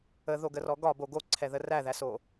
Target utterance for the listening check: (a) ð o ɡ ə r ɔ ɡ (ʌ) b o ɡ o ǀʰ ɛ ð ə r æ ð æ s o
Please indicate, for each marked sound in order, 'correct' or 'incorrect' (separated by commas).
incorrect, incorrect